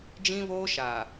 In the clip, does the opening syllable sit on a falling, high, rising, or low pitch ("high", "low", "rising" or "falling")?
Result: high